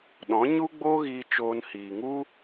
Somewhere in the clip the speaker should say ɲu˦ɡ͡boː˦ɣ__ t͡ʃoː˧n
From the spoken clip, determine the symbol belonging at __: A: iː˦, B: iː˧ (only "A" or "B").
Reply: B